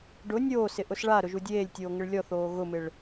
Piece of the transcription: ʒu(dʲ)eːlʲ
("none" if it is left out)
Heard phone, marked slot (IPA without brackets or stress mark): dʲ